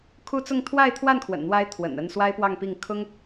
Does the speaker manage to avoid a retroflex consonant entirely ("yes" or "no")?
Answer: yes